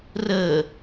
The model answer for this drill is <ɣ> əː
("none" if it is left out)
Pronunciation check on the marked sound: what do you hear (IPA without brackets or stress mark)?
r